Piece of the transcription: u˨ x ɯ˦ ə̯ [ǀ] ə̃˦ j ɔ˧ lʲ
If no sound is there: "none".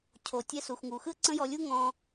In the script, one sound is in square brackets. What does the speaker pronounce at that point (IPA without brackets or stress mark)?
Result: ǀ